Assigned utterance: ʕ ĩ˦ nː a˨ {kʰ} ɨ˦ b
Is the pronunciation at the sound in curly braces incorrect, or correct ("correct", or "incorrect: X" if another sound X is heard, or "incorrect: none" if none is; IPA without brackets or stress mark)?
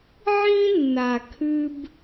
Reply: correct